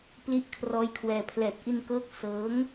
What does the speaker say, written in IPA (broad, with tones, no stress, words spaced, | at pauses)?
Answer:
pli˦˥ʔkʰrɔː˦˥jkʰwɛː˧ pʰlɛː˨˩t̚ʔi˧nkɤː˦˥k̚ sɤː˦˥ŋ